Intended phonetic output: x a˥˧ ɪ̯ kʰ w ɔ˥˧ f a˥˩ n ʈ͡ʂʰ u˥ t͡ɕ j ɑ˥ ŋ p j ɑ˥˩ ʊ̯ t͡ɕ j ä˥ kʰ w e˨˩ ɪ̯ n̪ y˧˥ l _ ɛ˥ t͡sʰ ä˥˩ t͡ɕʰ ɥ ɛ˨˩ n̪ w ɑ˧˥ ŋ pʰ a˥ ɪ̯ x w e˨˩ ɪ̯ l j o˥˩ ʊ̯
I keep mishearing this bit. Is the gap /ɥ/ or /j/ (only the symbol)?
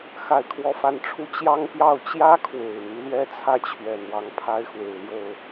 ɥ